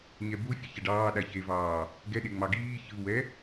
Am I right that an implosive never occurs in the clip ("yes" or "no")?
no